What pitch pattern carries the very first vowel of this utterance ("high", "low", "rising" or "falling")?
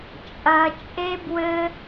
high